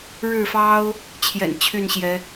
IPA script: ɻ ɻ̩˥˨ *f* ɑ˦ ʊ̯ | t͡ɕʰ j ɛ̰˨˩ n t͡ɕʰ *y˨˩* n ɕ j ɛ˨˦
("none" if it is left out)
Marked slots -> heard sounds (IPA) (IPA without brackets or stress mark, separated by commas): f, y˥˨